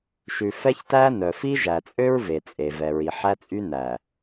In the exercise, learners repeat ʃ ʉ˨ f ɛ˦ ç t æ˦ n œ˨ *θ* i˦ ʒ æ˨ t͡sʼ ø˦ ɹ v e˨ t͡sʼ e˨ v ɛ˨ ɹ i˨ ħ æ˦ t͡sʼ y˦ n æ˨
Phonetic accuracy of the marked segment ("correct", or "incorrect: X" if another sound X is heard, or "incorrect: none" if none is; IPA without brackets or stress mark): incorrect: f